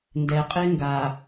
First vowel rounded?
no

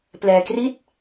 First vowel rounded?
no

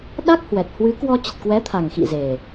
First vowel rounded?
no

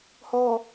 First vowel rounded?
yes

